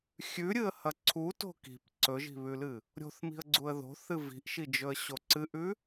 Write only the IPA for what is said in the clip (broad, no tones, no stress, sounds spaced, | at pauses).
xʲ ʉ ɾʲ ɨ ə̯ h ɐ ǀʰ u t o̤ k i̤ p ǀ ɵ ʒ i̤ β ʉ l ɨ | ɾʲ o̤ θ m i̤ ə̯ ɡ͡ǀ u ə̯ ð o̤ θ ɨ v i̤ ʔ ʃ i d͡ʒ ɵ ə̯ ɕ o ǀ ɨ ʔ ʉ